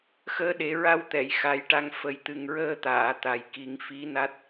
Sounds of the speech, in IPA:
xəː˧ɗe˨˩˦ɹa˧wt̪ɛ˨˩˨j xa˨˩˦jʈa˧ŋ fə˨˩jt̪ɨ˨˩ŋɹəː˧t̪aː˨˩˨ t̪a˨˩jki˨˩˦ŋ fi˧˥na˦˥t̚

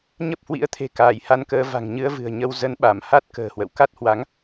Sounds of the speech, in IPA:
ɲə˦˥p̚hwḭ˧˥ə̯t̪ʰe̤˨˩ kaː˧˩jha˧nkəː˨˦ va̤˨˩ŋɲɨ˨˦ə̯vɨ̤˨˩ə̯ ɲə˧w zə˨˦nɓa˧˩mha˦˥t̚ kə̤ː˨˩hwə̰˧˨w ka˦˥t̚hwa˨˦ŋ

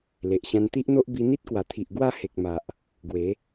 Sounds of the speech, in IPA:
le˨ʔɕã˧nt̪i˦ʔn̪o˦ʔ bi˧ n̪i˦t̚kwa˨˩t̪ʰi˨ʔ ɡwa˥˧ he˨k̚ma˨ʔ | ɡwe˨˦

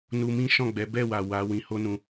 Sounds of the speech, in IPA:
nu˧mĩ˦ʃɔ̃˦˨ɡ͡bɛ˨˦ bɛ˦˨wa˨ wa˨˦ wĩ˧ho˦nũ˧

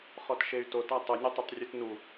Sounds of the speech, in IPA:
χɔtʃey̯to tatˤʊ nʲʊtˤʊtˤrʲutnu

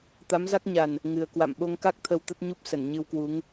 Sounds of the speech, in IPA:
t̪a˨˦mza˦˥k̚ɲa˨˩n | ŋɨ˨˩ə̯kwa̰˧˨m ɓo˧ŋka˦˥k̚ t̪ʰə˧wt̪ə˦˥t̚ɲu˦˥p̚ sə˧˩nɲɨ˧wkwu˨˦ŋ

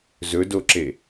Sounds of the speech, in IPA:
zɵdoǁe

